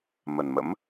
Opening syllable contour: low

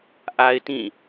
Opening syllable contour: low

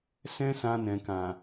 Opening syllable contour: high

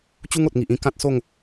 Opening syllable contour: high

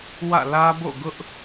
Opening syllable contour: falling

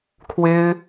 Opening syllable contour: high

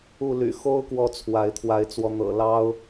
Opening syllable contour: falling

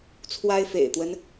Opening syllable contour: high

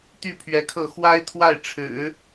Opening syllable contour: falling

